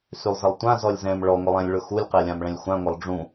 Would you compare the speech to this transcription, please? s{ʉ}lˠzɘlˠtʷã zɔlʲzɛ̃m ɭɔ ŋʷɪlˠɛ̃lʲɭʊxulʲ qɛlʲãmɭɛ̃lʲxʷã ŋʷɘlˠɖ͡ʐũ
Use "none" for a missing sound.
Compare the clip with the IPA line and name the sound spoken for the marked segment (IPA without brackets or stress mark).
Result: ʉ